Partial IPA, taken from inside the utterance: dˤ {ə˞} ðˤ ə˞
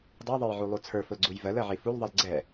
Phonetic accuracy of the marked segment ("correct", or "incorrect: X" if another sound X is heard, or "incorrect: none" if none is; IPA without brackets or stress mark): incorrect: ɜ